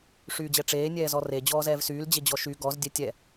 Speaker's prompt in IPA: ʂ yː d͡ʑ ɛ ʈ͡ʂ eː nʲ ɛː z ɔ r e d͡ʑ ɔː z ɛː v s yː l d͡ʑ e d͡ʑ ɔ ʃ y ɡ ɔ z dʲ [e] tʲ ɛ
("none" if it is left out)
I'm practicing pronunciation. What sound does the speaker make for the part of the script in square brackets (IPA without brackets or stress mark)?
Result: ɛ